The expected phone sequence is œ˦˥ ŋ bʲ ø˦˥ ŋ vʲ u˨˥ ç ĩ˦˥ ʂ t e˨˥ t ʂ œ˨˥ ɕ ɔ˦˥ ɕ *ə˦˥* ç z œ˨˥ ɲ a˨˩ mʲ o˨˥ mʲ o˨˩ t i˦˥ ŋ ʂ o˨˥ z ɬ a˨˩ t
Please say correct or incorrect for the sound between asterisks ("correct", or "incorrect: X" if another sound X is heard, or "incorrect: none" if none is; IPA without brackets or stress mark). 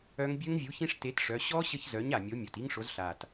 correct